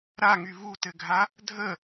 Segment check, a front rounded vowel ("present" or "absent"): present